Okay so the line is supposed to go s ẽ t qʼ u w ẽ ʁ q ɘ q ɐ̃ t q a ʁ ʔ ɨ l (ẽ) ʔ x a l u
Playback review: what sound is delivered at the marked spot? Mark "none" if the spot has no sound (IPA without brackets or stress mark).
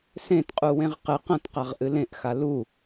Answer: ẽ